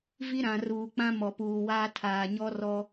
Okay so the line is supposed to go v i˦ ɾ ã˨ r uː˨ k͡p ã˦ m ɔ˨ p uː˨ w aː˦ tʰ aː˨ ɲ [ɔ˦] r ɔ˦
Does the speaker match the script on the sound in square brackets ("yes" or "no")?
yes